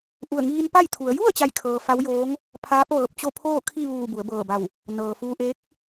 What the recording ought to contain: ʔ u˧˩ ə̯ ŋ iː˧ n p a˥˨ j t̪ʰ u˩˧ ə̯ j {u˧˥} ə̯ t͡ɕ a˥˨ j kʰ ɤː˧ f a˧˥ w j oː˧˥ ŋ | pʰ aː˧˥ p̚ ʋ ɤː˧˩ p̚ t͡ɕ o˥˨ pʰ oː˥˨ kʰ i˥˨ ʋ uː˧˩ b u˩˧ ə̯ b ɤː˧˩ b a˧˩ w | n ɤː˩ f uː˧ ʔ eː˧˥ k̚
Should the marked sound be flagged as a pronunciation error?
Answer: yes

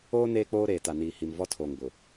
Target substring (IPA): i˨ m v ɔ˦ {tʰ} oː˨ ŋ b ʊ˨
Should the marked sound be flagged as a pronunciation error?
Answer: no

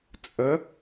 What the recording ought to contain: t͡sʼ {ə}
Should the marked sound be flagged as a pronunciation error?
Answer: no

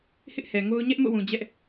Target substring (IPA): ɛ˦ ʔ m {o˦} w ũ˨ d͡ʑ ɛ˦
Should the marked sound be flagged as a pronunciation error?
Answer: yes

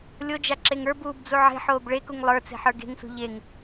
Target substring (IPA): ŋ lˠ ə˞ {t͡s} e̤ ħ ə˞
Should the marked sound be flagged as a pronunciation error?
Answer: no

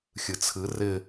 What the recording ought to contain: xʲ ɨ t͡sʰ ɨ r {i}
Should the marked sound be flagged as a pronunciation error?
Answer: yes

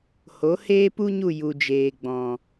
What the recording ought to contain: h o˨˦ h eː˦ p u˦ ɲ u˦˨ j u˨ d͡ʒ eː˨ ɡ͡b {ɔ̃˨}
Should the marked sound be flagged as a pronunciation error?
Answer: no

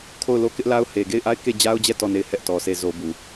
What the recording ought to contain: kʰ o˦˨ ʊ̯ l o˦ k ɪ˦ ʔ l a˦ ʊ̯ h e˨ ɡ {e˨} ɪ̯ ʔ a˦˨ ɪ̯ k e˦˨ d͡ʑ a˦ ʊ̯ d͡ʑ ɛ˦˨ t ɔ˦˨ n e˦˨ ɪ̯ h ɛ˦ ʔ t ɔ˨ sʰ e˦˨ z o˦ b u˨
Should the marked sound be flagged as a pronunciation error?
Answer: yes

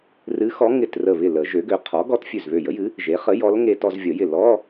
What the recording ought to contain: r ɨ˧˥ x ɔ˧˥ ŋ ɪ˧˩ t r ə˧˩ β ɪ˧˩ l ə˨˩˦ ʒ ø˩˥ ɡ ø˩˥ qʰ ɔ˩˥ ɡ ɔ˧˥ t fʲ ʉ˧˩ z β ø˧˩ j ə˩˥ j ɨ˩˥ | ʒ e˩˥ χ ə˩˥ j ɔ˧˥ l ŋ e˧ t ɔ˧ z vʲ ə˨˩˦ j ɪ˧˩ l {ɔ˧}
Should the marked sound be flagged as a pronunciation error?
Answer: yes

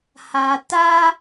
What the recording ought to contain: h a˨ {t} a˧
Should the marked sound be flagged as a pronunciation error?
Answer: no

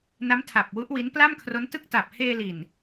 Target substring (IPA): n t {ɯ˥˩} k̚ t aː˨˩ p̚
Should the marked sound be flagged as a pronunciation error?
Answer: no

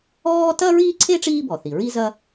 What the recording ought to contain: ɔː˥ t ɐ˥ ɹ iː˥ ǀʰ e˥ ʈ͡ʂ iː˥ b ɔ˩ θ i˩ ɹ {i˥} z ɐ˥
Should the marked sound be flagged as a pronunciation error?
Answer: no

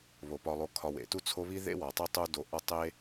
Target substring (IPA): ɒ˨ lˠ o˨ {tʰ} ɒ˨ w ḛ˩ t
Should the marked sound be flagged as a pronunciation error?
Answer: yes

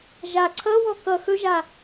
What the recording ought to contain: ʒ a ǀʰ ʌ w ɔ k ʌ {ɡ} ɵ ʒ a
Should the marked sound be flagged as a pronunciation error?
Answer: yes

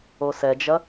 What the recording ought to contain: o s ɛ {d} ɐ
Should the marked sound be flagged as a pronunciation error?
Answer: yes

